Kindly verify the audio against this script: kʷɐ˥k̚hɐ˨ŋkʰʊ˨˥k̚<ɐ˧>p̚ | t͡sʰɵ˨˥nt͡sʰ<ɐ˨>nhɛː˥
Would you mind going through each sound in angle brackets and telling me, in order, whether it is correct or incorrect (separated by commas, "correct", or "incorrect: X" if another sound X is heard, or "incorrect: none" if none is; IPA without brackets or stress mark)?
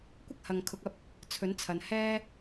correct, correct